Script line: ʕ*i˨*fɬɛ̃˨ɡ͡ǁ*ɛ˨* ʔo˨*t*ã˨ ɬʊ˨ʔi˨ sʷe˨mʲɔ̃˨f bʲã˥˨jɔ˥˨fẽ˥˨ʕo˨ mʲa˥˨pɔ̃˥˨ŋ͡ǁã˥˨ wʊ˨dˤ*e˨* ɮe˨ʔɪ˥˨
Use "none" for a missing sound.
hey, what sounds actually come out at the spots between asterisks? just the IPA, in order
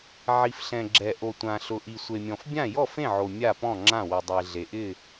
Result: i˨, ɛ˨, tʷ, e˨

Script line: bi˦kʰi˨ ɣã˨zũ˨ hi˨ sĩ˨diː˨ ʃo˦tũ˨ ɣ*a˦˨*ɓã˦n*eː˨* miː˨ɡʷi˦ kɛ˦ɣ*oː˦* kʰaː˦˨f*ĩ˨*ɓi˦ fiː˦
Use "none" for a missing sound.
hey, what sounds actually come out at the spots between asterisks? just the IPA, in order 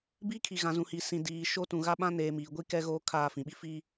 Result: a˦, eː˨, oː˦, ĩ˨

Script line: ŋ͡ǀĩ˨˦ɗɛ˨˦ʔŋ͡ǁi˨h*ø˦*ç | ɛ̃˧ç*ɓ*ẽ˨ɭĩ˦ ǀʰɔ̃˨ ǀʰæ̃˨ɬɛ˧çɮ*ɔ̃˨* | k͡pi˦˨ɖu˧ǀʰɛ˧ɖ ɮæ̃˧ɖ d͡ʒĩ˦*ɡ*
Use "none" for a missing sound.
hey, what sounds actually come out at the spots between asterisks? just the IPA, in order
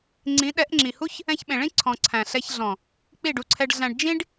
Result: u˦, ɓ, ɔ̃˨, ɖ

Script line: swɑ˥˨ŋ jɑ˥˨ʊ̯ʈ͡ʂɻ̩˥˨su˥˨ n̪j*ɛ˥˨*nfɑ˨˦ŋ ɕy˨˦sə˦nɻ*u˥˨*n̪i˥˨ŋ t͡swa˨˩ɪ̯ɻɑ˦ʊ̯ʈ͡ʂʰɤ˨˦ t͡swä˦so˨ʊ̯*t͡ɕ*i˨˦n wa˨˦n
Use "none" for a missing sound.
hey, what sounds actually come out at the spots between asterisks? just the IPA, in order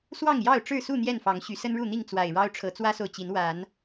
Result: ɛ˥˨, u˥˨, t͡ɕ

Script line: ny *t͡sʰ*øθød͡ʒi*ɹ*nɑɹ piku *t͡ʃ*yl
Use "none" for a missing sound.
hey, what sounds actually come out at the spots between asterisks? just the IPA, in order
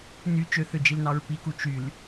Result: t͡ʃ, l, t͡ʃ

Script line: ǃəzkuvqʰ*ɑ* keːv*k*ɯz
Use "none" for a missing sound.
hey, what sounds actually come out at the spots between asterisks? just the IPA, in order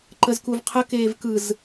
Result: ə, k

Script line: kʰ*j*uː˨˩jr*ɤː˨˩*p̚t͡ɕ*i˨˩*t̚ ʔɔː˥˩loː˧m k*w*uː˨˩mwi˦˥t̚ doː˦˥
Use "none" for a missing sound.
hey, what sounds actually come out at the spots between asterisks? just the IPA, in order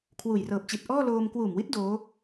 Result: w, ɤː˨˩, i˨˩, w

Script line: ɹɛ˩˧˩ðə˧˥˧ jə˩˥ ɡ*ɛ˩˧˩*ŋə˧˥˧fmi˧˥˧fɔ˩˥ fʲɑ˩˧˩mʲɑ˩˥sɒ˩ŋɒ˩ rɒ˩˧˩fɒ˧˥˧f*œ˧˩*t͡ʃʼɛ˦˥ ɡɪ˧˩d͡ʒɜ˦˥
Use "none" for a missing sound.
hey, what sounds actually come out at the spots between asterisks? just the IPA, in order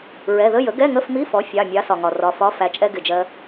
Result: ɛ˧˥˧, æ˧˩

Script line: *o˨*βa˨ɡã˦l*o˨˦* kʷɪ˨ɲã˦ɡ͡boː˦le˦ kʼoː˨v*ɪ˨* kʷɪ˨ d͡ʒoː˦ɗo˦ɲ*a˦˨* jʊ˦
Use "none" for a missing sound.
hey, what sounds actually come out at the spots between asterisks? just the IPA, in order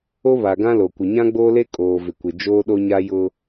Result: o˦, o˨, ɪ˨, a˦

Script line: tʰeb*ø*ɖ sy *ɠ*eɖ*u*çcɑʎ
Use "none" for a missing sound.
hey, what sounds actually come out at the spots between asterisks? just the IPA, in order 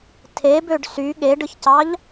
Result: ø, ɠ, ɯ

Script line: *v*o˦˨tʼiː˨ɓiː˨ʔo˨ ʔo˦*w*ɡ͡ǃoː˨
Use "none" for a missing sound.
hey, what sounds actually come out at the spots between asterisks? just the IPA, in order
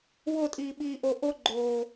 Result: w, none

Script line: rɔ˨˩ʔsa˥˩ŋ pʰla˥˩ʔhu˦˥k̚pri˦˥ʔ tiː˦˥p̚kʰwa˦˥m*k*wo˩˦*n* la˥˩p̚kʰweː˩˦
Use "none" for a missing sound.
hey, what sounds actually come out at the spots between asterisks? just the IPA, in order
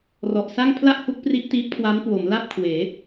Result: k, m

